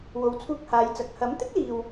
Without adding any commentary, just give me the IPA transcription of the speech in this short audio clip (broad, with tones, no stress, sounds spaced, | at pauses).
w o˨˧ w t͡sʰ uː˧ k̚ h aː˨˧ j t͡s ɐ˨˥ k̚ h ɐ˨˥ m t̪ ɪ˥ k̚ l iː˨ w